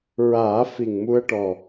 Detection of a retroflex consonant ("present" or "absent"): present